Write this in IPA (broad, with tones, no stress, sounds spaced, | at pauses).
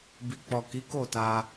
b i˨ k͡p ɔ˨ k i˨˦ k o˦˨ t a˧